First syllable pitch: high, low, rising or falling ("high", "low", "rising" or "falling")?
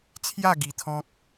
falling